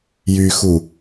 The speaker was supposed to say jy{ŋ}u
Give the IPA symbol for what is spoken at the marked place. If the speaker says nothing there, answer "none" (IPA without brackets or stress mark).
x